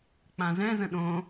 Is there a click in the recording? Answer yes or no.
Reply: no